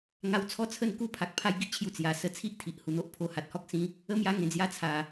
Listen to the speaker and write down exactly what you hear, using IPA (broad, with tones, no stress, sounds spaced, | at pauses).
ŋ a˧ w t͡sʰ ɔ˥˧ t͡sʰ ə˥˧ n k u˦ pʰ a˨ k̚ pʰ a˦ j ɡ i˦ ʔ t͡ɕʰ j u˧ t͡s j a˨˩ s ə˧ t͡sʰ i˦ ʔ t̪ʰ i˨ ʔ h u˨˩ n̪ o˦ ʔ pʰ o˧ h a˨ t̚ h ɔ˦ k̚ s ĩ˦ | ə˦ m j a˧ ŋ ẽ˨˩ d͡z j a˧ t͡sʰ a˨˩